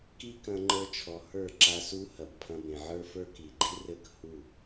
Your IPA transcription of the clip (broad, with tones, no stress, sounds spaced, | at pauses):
k i˦ k ɐ̃˧ ŋ͡ǃ ə˞˧ t͡ʃʰ ɔ˨ h ə˞˦˨ ǁ a˧ s u˦ h ɐ˨ b pʰ ɐ̃˧ b ẽ˨ ʕ ə˞˦ f ə˞˦ k i˨ ɡ͡ǃ i˦ r ɘ˦˨ k h u˦˨